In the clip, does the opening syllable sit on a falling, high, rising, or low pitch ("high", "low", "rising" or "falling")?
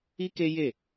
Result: high